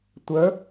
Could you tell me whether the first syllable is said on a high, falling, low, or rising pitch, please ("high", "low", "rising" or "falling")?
rising